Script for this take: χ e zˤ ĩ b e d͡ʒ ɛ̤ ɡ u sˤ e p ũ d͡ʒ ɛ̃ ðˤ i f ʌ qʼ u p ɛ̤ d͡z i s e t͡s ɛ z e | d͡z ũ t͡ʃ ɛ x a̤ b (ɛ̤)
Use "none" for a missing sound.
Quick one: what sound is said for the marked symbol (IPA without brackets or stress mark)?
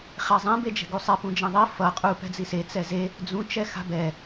ɛ